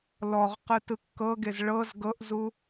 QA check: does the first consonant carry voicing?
yes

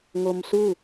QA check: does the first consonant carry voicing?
yes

